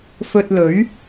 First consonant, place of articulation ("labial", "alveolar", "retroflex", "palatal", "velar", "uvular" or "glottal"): labial